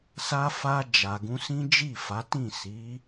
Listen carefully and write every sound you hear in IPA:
s a˧ f a˧ d͡ʒ a˨ ɡ ũ˧ s ĩ˦ d͡ʒ i˦˨ f a˨˦ t ĩ˦˨ s i˨˦

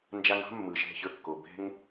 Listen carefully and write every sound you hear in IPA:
n d͡ʒ a˧ ŋ ɑ̤˦ mː ɯ˨ ʃ ɛ̤˦˨ ç ə˞˦ kː o˨ b ɛ̤˧ ŋ

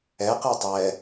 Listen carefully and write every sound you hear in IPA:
ɛ q ɛ tˤ ɛ

